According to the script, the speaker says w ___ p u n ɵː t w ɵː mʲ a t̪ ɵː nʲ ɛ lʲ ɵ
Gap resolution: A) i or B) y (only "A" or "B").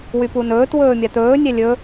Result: B